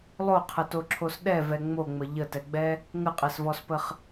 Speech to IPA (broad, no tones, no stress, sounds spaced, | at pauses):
lˠ o qʰ ə t o ǁʰ o s ɗ ɛ v ɛ ŋ͡m o ŋ͡m ə ʎ ə t ɛ ɡ͡b ɛ | ŋ ə qʼ ɛ s v ɔ s p ə χ